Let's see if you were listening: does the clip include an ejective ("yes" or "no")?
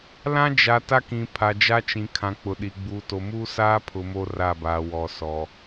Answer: no